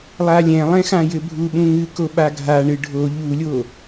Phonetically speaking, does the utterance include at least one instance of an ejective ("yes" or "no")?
no